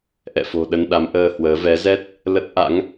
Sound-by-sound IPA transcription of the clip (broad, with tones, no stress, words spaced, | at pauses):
ʔɛ̰˧˨fo̤˨˩ ɗə˧nɗa˨˦mʔəː˧hwəː˨˦ vɛ˨˦zɛ˦˥t̚ | lə˦˥t̚ ʔa̰˧˥ŋ